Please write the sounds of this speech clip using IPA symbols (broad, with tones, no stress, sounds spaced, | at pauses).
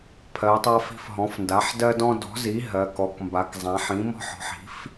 pʰ ɜ˩˧ tˤ a˦ f i̤˦ f ɦ ɔ̃˩˥ f n d a˩˥ ħ d ɜ˦ d ɔ̃˦ d ɔ̤˩˥ z i˩˥ ɦ ɜ˩˧ k ɔ˩˧ k m b a˩˧ k zˤ ã˩˧ ħ ĩ˩˥ m ɔ̤˦ ħ ɔ̤˩˥ ħ i̤˩˥ f